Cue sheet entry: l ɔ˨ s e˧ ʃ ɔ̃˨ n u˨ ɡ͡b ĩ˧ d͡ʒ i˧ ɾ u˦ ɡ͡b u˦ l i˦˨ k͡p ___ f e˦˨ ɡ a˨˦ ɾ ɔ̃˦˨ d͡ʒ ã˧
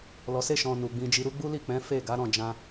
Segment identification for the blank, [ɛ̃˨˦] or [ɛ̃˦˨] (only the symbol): ɛ̃˨˦